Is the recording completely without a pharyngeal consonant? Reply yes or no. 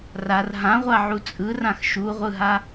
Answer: no